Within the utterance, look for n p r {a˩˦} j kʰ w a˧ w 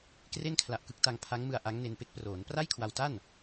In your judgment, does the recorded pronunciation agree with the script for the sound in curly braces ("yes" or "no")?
no